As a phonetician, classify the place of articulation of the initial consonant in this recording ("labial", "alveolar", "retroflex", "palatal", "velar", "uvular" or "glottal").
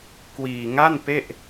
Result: velar